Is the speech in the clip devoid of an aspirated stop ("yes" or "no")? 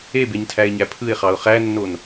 no